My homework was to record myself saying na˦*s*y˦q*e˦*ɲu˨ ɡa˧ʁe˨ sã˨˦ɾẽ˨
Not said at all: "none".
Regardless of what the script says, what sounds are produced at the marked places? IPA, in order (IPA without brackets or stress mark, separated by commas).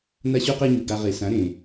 ɕ, e˦